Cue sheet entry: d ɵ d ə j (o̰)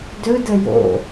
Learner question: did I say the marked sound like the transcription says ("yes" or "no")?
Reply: yes